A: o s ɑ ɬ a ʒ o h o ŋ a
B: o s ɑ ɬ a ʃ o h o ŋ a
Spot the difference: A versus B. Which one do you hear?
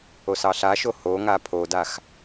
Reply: B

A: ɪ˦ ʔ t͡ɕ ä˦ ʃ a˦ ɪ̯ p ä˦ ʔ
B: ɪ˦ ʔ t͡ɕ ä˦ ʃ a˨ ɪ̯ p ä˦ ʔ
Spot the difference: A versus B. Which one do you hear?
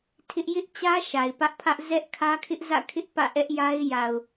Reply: B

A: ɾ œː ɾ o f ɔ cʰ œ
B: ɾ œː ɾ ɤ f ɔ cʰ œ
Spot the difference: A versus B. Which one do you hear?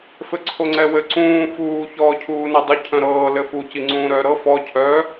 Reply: B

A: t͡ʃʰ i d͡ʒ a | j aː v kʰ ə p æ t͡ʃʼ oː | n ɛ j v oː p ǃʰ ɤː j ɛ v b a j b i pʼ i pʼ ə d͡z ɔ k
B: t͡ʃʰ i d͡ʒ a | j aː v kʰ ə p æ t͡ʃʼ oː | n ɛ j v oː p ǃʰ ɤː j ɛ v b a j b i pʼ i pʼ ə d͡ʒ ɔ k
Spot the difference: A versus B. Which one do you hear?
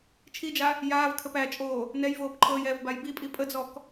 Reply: A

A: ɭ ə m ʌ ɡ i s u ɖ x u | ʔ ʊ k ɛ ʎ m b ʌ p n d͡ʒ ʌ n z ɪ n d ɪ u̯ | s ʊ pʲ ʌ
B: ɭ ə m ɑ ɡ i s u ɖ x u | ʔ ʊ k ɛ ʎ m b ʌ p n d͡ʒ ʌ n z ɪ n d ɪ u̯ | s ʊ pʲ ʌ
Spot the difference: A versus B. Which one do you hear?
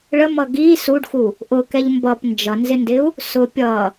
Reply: A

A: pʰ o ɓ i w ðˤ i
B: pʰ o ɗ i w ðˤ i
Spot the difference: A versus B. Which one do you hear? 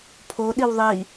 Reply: B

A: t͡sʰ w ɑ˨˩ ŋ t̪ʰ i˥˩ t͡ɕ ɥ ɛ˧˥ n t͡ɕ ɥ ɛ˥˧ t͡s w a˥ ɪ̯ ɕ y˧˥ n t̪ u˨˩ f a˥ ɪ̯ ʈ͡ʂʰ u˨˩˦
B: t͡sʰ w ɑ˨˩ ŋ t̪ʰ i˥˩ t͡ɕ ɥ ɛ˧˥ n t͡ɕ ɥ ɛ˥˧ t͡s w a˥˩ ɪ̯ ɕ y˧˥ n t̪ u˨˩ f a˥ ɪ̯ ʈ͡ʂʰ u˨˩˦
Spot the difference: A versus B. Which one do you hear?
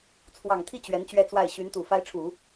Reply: B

